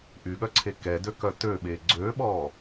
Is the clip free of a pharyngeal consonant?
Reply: yes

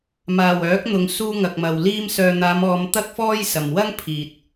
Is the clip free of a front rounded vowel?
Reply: no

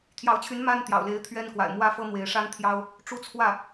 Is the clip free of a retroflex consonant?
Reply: no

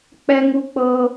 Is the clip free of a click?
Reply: yes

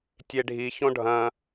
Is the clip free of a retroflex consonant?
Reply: no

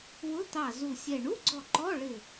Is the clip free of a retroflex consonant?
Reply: no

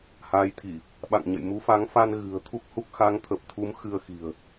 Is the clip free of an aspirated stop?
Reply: no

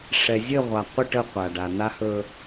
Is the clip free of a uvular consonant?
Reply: no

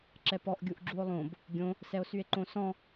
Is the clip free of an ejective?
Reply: yes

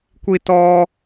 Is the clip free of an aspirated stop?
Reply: yes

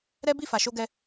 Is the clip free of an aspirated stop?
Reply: yes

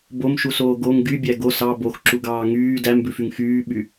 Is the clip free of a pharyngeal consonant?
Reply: yes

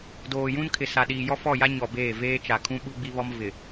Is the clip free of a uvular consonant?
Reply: yes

